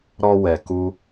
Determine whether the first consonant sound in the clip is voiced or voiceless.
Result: voiced